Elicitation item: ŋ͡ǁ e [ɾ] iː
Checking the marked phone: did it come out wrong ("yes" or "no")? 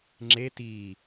yes